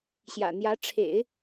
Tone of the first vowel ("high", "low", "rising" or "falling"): low